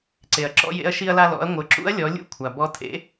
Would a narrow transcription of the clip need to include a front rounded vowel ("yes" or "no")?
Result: no